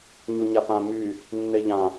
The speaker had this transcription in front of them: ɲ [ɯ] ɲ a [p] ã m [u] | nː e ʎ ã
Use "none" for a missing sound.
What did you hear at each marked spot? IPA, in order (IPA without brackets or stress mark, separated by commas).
u, p, y